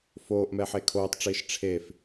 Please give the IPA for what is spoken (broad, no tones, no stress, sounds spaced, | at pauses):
f oː ʔ m ɛ ħ e kʰ oː tˤ ʈ͡ʂ iː ʃ ʈ͡ʂʰ e f